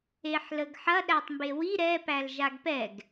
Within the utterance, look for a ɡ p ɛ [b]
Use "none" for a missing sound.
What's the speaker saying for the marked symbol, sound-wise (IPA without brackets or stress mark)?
ɡ